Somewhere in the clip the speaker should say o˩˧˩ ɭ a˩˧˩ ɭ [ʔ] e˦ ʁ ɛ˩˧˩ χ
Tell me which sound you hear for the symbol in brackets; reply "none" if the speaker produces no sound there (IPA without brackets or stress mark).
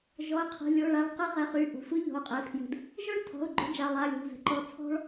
q